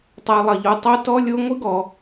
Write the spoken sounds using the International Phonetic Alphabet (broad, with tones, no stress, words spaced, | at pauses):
tˤɛ˨lˠɐ˩ʎo˨ tˤo˦tɔ˥lʲo˥ ŋʷi˥ɡɔ˨